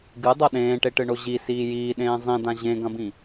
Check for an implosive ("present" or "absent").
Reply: present